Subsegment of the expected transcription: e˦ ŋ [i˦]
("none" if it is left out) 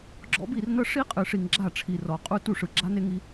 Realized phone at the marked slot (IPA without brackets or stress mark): i˦